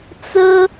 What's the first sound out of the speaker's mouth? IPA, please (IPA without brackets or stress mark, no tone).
t͡s